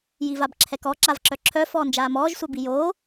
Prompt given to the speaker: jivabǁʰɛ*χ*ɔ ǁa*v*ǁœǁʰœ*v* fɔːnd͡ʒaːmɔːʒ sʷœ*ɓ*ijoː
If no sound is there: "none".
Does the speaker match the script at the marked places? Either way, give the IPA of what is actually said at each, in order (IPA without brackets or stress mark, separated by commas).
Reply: k, v, none, b